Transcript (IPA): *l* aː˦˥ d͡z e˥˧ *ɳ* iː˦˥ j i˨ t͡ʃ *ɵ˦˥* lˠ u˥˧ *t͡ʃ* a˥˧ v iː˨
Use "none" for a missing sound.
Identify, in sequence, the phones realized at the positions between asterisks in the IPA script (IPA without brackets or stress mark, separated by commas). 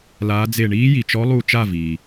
l, ɳ, ɔ˦˥, t͡ʃ